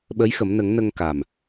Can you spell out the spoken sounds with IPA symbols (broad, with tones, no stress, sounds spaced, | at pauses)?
ɓ ə˧˥ j x ə˨˩˦ m n ə˨˩˦ ŋ n ə˧ ŋ k a˨˩ m